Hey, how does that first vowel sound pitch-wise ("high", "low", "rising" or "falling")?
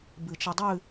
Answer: low